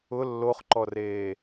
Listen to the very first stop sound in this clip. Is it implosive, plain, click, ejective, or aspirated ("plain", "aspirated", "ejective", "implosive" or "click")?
click